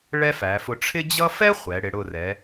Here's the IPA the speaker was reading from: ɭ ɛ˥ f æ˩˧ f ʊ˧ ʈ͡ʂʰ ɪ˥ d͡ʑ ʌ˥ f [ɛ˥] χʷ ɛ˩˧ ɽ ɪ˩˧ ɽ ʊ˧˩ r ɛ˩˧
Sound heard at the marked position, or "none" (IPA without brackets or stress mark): ɛ˥